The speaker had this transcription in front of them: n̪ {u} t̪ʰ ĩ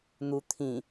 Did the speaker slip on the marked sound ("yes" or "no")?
no